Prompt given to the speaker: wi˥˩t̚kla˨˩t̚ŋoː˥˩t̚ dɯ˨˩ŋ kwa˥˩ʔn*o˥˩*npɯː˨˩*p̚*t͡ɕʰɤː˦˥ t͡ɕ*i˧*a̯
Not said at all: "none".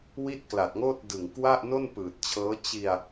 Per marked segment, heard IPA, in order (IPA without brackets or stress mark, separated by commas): o˥˩, t̚, i˧